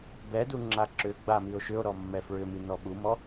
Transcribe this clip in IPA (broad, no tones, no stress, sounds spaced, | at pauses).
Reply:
b ɛ d u ŋ͡ǁ a ǁ ʏ ɡ͡b a m i o̯ ʃ ʏ o̯ ɾ ɔ mː ɛ f ɹ ʏ m i n ɔ ɓ u m ɔ